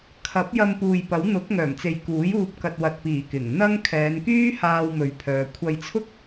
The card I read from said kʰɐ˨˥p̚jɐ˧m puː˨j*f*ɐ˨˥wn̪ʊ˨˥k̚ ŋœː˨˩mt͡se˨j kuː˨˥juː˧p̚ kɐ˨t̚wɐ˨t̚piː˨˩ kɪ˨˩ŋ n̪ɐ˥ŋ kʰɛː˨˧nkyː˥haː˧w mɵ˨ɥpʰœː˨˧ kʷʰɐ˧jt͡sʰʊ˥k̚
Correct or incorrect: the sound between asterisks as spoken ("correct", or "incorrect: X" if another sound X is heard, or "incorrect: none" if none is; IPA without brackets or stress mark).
incorrect: p